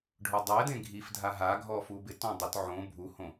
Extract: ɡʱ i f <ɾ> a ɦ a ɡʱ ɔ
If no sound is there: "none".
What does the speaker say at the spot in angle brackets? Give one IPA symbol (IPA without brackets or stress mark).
dʱ